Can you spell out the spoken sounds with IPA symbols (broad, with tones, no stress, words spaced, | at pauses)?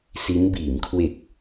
si˦˥n biː˩˦mkʰwe˨˩k̚